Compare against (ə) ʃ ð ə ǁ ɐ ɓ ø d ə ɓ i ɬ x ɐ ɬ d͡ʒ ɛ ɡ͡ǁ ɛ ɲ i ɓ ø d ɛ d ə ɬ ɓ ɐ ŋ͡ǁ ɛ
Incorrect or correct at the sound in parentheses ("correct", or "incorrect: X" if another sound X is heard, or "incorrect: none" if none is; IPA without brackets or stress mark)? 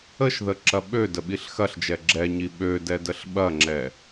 correct